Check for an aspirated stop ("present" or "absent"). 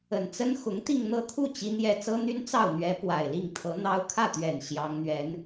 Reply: present